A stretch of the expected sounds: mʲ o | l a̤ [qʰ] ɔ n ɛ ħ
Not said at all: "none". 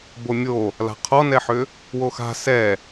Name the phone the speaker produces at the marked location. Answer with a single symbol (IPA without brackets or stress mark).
qʰ